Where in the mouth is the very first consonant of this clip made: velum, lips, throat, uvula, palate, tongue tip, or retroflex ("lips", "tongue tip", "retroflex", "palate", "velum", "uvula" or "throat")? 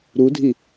tongue tip